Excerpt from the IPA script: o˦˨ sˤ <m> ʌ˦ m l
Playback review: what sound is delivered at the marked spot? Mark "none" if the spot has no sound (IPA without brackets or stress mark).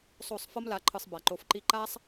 f